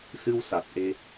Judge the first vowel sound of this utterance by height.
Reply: high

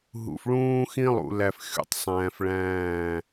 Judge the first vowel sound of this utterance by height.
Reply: high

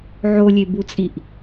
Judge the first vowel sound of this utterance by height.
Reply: mid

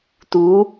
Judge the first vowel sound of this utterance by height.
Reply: high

